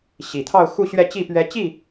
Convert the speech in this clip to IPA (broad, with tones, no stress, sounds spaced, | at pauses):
ɕ i˨˩ t̪ʰ ɑ˥˧ ʊ̯ x u˥˧ ɕ ɥ ɛ˥˧ t͡ɕ i˥˩ p ɥ ɛ˧˥ t͡ɕ i˥˩